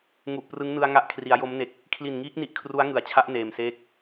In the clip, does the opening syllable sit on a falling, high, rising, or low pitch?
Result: low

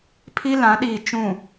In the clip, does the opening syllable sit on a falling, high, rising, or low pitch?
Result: high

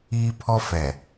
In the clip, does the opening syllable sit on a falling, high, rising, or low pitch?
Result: high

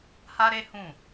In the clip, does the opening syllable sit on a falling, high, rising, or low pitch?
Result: high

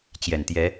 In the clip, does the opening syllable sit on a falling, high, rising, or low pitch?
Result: low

